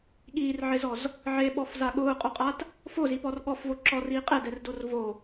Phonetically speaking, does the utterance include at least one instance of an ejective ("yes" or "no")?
yes